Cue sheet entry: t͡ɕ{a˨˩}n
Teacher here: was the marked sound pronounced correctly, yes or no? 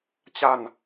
no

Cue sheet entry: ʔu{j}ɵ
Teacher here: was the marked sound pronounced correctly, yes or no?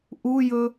yes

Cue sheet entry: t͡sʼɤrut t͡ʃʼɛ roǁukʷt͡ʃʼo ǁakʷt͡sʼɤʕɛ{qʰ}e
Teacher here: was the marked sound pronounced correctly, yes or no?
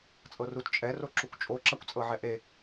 no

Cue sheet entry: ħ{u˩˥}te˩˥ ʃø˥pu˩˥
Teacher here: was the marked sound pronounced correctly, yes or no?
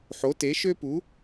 no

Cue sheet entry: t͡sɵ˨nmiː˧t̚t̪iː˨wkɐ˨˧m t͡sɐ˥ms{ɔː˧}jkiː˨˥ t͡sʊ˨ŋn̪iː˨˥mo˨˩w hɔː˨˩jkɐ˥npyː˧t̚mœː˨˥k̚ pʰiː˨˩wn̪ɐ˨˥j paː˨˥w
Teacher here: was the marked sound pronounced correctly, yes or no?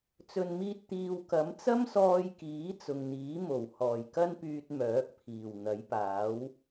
yes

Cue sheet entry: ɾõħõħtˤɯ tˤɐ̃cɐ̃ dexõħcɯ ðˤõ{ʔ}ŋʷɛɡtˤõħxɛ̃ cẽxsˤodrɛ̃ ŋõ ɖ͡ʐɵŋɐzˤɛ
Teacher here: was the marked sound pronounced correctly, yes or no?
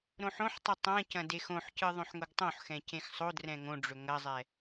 no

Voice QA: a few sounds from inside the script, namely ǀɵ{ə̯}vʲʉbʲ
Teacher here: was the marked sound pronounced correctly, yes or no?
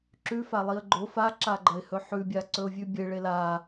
no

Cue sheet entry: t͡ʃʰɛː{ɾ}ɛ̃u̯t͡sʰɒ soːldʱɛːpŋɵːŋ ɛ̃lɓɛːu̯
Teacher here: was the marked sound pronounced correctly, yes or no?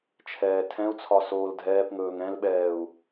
no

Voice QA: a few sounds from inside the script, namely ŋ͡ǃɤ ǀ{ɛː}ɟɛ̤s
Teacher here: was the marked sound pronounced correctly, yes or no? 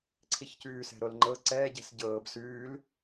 yes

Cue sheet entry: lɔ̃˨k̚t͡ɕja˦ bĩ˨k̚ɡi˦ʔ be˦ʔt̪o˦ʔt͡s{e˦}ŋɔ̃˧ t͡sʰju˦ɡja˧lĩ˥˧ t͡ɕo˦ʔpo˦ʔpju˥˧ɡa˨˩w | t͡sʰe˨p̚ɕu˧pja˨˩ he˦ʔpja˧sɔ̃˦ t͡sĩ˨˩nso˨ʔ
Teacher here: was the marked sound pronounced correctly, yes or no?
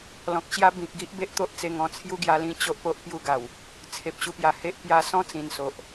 no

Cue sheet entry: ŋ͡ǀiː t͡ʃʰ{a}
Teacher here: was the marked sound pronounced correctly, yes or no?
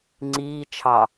no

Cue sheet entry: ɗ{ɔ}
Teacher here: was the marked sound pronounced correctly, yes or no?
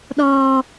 no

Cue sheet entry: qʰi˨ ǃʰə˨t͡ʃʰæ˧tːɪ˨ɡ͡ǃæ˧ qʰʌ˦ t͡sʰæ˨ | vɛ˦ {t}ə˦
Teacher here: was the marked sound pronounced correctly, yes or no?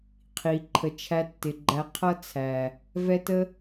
yes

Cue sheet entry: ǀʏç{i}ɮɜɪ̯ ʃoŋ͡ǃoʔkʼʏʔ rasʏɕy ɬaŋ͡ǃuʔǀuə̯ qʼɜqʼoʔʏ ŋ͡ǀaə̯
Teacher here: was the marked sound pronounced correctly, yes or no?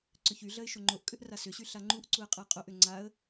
no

